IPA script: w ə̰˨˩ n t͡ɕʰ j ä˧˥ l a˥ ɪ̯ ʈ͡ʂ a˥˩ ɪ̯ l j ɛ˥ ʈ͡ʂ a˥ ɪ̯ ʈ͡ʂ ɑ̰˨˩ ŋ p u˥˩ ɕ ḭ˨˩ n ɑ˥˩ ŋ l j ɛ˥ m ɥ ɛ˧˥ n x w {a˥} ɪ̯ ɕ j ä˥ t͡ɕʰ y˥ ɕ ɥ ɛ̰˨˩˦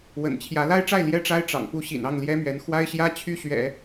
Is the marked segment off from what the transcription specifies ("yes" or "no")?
no